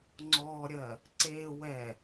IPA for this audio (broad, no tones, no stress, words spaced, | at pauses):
ŋ͡ǀɔɾʲɜ | ǀe wɛ